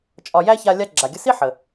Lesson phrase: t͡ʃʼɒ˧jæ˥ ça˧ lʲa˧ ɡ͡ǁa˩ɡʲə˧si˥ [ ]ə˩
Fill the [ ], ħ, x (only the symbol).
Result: ħ